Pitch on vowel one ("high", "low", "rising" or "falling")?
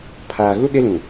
low